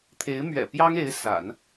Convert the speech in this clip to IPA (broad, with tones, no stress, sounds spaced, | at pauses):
t̪ʰ e˧˥ ɪ̯ m ɥ ɛ̰˨˩ p j ɑ˥ ŋ e˧˥ ɪ̯ s a̰˨˩˦ n